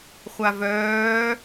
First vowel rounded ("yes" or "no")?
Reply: no